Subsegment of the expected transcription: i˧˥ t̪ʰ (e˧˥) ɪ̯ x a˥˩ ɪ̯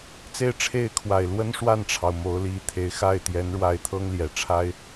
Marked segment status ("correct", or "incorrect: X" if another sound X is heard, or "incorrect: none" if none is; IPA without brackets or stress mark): correct